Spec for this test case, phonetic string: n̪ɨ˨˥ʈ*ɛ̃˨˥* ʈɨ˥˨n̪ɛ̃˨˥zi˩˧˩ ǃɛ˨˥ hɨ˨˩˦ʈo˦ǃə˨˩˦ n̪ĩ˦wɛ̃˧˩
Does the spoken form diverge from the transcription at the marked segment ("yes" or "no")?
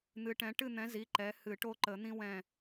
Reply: no